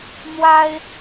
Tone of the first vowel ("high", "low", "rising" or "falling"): high